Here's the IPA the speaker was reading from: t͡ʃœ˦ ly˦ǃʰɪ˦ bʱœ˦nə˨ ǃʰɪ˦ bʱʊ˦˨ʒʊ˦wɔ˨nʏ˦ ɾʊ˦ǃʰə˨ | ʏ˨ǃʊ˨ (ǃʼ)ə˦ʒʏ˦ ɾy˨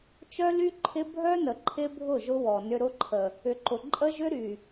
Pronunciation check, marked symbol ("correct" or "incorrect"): correct